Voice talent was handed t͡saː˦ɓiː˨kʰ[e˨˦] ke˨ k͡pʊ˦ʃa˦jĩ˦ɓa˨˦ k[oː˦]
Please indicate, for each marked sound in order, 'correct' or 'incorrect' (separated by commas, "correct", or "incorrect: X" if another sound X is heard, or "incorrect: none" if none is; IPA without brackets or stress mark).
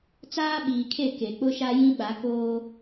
incorrect: e˦˨, correct